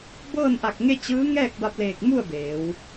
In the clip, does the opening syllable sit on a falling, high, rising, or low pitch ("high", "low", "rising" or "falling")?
falling